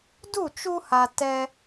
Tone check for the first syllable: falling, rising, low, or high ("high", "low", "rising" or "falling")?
falling